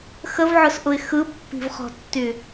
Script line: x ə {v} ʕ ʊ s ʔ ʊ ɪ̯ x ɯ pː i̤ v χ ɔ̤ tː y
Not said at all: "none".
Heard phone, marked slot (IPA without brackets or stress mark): v